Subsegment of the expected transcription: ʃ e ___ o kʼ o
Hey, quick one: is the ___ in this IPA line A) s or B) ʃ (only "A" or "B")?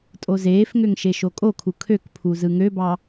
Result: B